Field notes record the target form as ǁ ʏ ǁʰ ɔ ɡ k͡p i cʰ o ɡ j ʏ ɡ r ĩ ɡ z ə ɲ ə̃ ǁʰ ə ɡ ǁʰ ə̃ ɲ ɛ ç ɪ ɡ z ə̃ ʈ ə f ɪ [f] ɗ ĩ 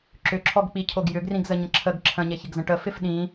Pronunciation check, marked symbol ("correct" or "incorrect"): correct